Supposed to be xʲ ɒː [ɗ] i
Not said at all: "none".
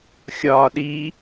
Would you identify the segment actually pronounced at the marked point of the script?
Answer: ɗ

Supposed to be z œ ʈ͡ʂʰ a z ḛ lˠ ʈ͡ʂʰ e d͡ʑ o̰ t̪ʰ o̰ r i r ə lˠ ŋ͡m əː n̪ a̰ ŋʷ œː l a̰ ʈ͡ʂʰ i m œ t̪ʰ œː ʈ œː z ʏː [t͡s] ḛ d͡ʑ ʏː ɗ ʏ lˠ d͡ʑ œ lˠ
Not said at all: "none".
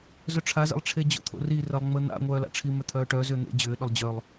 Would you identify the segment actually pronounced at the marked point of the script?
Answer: n̪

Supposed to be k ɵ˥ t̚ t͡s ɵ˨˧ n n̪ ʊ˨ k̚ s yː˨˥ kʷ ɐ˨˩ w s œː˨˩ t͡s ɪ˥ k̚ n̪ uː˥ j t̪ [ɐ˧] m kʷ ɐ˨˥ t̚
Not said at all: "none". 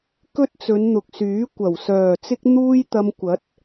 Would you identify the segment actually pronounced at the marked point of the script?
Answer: ɐ˧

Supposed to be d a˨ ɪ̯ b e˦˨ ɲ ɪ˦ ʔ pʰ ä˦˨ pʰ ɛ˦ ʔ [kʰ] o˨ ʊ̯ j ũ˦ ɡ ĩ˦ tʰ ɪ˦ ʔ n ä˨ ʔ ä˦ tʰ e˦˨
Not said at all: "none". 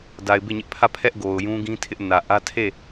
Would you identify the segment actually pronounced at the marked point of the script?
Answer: ɡ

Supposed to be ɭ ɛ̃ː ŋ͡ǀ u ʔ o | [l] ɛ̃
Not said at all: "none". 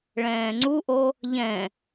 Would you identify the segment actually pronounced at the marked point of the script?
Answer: ʎ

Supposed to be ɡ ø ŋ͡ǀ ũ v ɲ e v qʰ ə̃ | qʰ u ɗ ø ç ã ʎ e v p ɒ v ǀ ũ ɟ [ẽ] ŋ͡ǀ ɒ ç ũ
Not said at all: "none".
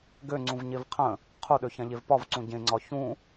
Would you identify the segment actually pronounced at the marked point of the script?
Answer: ẽ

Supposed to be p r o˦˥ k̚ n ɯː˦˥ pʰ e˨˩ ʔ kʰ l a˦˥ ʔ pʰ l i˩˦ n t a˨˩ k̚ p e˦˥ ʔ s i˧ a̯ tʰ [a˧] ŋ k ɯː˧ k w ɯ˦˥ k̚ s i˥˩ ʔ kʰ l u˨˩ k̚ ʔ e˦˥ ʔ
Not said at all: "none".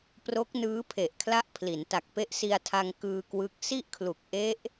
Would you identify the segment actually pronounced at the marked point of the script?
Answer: a˧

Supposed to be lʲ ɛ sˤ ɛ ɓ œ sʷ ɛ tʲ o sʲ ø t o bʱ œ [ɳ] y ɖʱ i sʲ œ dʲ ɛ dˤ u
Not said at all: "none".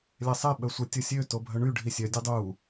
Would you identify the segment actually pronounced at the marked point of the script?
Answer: ɳ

